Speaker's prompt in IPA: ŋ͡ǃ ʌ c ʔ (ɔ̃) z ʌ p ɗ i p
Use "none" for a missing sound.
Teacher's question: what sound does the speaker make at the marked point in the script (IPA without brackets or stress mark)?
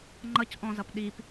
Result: ɔ̃